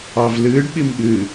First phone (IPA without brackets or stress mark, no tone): ɑ